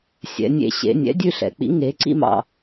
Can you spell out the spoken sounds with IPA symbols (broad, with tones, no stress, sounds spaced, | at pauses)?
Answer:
sʲ ɛ̰˩˧ nʲ ḛ˧˩ ɕ ḛ˩˧ nʲ ɛ̰˨˥ dʲ ʉ˥˧ ɬ ɛ̰˩˧ k͡p ḭ˨˥ ŋ e˩˧ ǀ ḭ˥˧ m ɑ̰˧˩